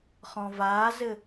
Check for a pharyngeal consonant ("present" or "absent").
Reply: absent